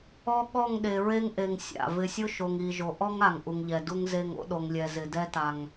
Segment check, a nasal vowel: absent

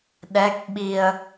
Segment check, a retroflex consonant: absent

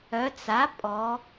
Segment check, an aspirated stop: absent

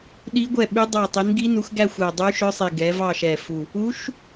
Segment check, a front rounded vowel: present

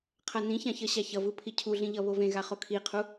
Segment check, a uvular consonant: present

